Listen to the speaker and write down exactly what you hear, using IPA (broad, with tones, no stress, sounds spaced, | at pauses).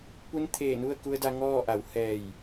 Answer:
p u˧˥ n t̪ʰ eː˧˩ n u˥˨ ə̯ k u˧ ə̯ d a˧ ŋ ɔː˥˨ ʔ a˩˧ w h ɛː˧˩ j